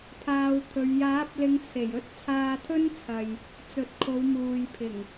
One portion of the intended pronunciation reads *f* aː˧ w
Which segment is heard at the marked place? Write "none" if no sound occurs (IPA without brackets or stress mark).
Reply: pʰ